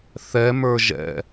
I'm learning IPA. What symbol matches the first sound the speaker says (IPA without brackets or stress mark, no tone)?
θ